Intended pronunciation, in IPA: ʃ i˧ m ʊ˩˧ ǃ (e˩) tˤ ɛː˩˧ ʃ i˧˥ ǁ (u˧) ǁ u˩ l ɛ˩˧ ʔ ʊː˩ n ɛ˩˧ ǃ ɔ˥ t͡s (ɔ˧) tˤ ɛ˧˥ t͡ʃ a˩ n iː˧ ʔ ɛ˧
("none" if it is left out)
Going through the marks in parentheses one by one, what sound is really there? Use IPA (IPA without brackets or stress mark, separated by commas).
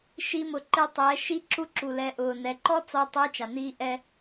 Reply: e˧, u˧, ɔ˧